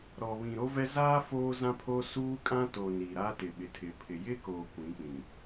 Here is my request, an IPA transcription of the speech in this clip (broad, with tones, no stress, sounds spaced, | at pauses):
ɾ ɔ˨ β ĩ˨ ɾ o˦ v ɛ˦ z aː˦ f oː˦ z ã˦ pʰ o˦ s uː˦ kʼ ã˦ t o˨ n i˨ ɾ a˦ t ɪ˨ ɓ ɪ˨ tʰ ɪ˨ pʰ ɪ˨ j ɪ˦ k oː˨ kʷ ĩ˨˦ k͡p ĩ˨